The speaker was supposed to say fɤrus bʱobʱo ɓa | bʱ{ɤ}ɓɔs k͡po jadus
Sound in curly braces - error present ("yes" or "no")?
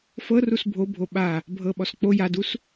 no